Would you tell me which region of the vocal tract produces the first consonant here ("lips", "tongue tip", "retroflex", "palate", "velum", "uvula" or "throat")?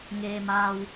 velum